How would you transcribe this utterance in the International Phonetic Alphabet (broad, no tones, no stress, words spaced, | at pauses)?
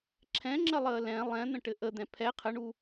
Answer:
ǁʰɛ̃ŋ͡ǁəlˠəː lɛ̃ lˠɛ̃n̪ə̃ʈɘ ʔəd̪ɛ̃ pʰɛ qʰəɳu